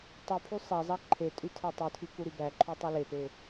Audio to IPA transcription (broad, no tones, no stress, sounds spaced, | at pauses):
tˤ u pʰ y sˤ æ zˤ ɑ ǃʰ e tʼ y tʰ æ tˤ u tʰ i k u ɾ y b æ ǃʰ y tˤ u l e p e